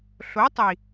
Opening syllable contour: rising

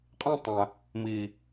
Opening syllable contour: falling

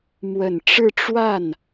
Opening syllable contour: low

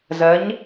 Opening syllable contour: rising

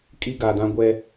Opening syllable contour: high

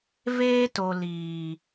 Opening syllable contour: high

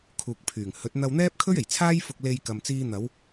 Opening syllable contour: low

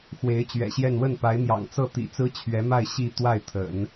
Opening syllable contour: rising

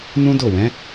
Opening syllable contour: high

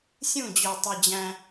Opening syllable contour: falling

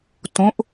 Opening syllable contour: rising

